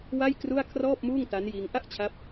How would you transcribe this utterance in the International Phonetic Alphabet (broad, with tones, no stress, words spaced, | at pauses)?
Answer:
wa˥˩jkru˥˩a̯ kʰrɔː˥˩p̚muː˥˩ŋta˦˥njiː˧ŋ ʔa˥˩ʔt͡ɕʰa˦˥p̚